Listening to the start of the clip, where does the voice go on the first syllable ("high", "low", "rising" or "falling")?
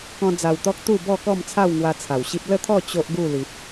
high